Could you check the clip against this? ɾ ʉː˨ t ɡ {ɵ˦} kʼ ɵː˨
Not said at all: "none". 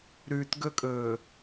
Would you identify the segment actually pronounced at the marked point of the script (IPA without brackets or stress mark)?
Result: ɵ˦